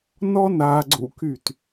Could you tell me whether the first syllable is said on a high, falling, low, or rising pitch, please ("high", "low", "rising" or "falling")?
high